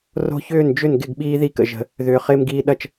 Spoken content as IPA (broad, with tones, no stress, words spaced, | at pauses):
ro̤˦çʏː˥˩nd͡ʒʏ˥˩n ɡɪ˥˩ɡɓiː˦ði˦kə̰˨ ʒə̤˨ | ðʏː˨χɪː˦mɡiː˦ɗɐ˥˩t͡ʃ